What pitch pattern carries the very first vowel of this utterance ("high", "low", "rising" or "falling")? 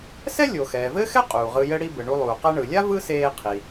high